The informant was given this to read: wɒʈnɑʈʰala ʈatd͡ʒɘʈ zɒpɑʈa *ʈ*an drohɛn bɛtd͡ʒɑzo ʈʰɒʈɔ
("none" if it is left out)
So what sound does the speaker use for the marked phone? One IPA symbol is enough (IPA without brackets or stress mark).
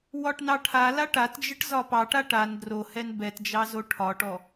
ʈ